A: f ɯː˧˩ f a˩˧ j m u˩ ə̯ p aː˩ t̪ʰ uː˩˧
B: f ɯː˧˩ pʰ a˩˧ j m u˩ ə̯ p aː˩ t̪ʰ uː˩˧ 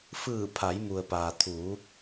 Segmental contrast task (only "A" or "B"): B